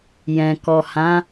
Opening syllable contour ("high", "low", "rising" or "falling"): low